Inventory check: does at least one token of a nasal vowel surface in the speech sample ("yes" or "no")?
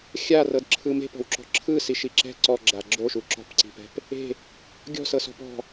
no